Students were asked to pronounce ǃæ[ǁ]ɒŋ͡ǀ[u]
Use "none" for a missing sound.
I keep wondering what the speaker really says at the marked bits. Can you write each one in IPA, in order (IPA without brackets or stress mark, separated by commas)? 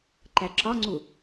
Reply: ǁ, u